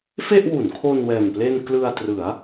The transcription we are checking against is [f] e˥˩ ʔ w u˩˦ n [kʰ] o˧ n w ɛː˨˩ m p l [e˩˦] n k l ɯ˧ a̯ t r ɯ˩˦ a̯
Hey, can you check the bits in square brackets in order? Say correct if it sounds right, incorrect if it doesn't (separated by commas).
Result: correct, correct, incorrect